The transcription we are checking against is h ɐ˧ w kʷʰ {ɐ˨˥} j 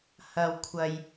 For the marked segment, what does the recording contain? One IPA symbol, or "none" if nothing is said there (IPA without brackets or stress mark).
ɐ˧